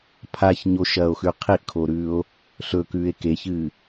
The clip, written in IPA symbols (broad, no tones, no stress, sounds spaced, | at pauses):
pʰ a ç ɲ o ʃ ɐː o̯ x ʉ qʰ i ʔ kʰ o ɾ ʉː o̯ | ɬ ɵ k ʉː e̯ k e ç ɨː